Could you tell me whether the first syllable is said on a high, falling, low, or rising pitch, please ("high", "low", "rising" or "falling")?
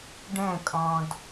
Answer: falling